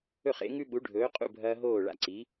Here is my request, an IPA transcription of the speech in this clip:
ɵ˥˩χḛ˩˥ŋʉ˥ ɓu˩˥ɖʱɵː˩˥qʼṵ˥˩bʱɐː˧ ɦoː˥˩ɭa̰˧ǀi˩˥

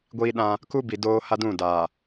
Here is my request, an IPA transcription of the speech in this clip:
ɡʷiː˦ɗã˦ | ku˦bi˨ doː˦ha˦dũ˦˨da˨

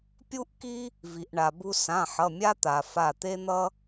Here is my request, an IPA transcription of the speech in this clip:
pʲu˥ʔki˥ | vi˩ʔɳa˩bu˧ sã˩˧˩ħʌ˩˧˩mʲa˥t̪a˩ fa˧˩t̪e˥n̪ʌ˥

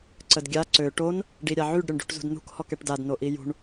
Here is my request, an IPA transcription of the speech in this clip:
ǀədɡʲa ǀø ʈon | ɖiɾʲaʕyɖ ɾʲoɳɖṳʈzṳdnṳk hɔkɛʈdad noʔijṳɳ

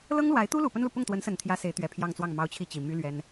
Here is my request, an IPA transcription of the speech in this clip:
lɤ˥ŋlwa˧˥ɪ̯t̪u˥lu˨˩ pə˥nlu˨ pʊ˥˩ŋt̪wə˧˥nsə˨˩nt̪ʰjä˧˥ se˧˥ɪ̯t̪ɥɛ˨˩ pʰjɑ˥˧ŋt͡swɑ˥˩ŋ mɑ˥ʊ̯t͡ɕʰi˥˩t͡ɕi˨˩ my˥lɥɛ˥n

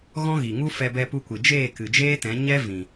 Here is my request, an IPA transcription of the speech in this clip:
ɣɔ̃˦ɣi˨ŋu˦ fɛ˧bɛ˧pu˧kʷɨ˨ d͡ʒeː˦˨kɨ˨d͡ʒeː˦tɛ̃˨˦ ɲɛ˦vĩ˨

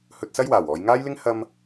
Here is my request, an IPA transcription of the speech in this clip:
hɵ˧t̚sɐ˥jwaː˨˩wɔː˨˧j ŋaː˥jlɪ˥ŋ hɐ˧m

